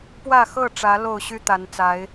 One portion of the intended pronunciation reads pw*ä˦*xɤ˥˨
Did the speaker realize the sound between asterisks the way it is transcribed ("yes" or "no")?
no